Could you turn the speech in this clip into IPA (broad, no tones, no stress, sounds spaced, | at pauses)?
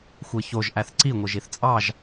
xʷ e ç o ʒ ʔ æ θ ǀ i ŋʷ ɯ ʒ i θ t͡sʼ ɑ ʒ